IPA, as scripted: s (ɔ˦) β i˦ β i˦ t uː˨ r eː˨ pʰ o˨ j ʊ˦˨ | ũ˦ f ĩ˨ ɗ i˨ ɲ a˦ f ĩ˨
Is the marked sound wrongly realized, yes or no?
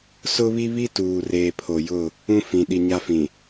yes